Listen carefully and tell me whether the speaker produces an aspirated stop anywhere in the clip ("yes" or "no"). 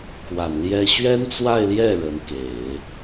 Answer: no